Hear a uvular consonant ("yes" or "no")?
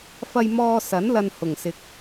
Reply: no